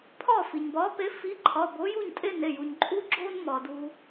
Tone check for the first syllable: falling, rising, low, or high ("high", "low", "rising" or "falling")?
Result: falling